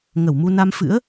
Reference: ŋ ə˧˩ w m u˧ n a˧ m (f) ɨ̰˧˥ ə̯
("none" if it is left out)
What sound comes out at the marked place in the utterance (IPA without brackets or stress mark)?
f